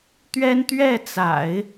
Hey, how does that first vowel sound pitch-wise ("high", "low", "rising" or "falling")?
high